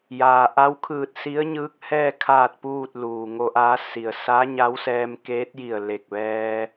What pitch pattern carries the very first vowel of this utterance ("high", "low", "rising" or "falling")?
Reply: low